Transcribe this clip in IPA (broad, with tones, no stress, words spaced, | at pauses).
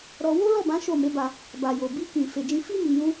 ɾɔ˧ wo˦lɔ˦˨bã˨˦ ʃo˦˨ me˨˦ba˧ | ba˨jo˨ bi˧kĩ˨ fe˨d͡ʒĩ˧fi˦ mi˧jũ˦